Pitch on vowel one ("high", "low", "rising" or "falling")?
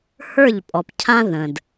falling